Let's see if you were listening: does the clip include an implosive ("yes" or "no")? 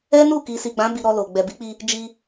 no